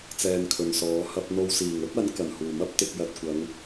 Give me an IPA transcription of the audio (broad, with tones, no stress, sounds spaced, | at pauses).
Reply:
t͡s ɛː˧ n kʰ ɵ˨ n s ɔː˨˧ h ɐ˧ p̚ n̪ o˧ w s iː˨˩ ŋ ɵ˥ t̚ ɐ˨˥ n k ɐ˨˩ n h uː˨˩ m ɐ˥ p̚ t̪ ɪ˧ k̚ j ɐ˧ t̚ kʷ ɐ˨˧ ŋ